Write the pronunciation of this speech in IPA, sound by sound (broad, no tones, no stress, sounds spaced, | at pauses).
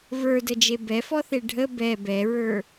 v ə˞ d ə d͡ʒ e b ɛ f ɔ θ e ɖʱ ə b ɛ b ɛ ɹ ə˞